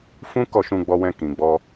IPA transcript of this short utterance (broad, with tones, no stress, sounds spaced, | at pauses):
f ũ˦ k ɔ˦˨ ʃ ũ˧ ɡ͡b ɔ˧ w ɛ̃˧ k ĩ˨ ɡ͡b ɔ˧